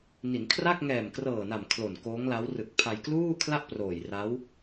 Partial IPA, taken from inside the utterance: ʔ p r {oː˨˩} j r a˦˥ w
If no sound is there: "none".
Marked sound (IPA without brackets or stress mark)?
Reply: oː˨˩